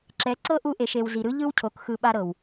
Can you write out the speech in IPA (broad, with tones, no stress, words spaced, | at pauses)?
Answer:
ǁɛ˨˦ ǀɤ˦ʔu˧ʔe˨ʃe˨w zi˨ɾɯ˦ ʎɯ˦wcʰo˨k xɯ˧ɓa˦ɾɤ˨w